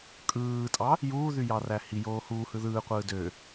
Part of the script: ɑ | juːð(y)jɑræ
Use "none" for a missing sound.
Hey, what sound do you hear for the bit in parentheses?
y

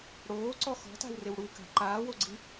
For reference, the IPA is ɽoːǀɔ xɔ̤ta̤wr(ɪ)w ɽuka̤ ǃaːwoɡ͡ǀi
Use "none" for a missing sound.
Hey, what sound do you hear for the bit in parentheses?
ɪ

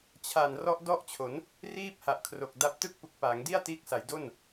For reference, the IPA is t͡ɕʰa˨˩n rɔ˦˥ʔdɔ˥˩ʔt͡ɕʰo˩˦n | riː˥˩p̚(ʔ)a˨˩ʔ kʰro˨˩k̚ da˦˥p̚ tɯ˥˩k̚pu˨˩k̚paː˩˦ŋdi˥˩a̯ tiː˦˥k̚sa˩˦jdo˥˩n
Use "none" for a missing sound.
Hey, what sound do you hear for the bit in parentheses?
h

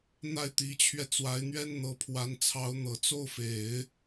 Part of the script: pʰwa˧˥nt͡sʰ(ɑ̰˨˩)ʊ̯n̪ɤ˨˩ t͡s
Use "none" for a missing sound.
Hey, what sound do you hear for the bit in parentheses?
ɑ˧˥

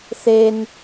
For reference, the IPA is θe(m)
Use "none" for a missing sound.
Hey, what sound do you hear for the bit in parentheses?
n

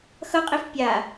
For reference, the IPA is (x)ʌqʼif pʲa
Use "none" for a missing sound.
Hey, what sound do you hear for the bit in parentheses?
x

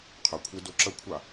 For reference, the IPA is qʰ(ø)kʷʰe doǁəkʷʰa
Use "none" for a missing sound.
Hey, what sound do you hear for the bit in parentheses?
ə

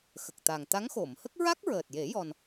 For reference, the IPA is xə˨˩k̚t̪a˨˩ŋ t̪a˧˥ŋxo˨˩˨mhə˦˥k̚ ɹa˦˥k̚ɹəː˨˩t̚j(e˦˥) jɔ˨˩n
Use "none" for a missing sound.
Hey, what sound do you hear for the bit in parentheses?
e˨˩˦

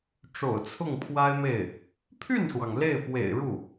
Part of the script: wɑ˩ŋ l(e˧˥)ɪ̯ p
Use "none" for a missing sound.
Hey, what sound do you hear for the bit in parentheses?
e˥˩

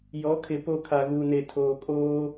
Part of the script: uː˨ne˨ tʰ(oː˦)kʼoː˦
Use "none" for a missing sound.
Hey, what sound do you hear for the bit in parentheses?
oː˨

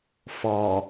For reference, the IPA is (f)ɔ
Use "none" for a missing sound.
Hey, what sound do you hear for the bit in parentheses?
f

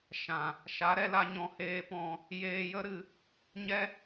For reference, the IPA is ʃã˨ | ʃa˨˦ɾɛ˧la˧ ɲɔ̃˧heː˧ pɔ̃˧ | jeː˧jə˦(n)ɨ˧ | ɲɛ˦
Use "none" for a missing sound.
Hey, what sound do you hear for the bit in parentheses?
ɾ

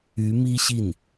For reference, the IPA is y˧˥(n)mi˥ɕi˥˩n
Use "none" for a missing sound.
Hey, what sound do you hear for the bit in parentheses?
none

